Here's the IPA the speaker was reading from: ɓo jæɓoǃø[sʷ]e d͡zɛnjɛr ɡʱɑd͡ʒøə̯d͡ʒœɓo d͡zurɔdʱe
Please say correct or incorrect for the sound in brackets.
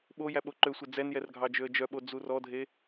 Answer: correct